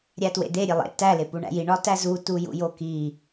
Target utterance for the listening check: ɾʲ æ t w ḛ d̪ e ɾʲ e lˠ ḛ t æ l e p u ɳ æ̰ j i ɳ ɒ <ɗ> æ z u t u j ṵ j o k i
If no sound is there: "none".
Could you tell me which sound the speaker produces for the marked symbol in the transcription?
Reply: t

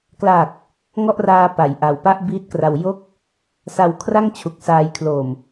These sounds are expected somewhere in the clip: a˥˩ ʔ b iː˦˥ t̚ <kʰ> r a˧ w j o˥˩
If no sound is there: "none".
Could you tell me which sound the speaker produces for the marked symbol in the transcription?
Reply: k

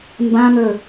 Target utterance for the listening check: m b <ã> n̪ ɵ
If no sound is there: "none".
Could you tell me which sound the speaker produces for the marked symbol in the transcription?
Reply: ã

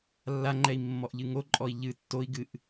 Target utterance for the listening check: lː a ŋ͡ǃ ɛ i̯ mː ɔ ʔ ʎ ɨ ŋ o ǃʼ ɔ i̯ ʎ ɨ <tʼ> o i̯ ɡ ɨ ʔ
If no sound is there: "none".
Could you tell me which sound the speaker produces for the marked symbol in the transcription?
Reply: tː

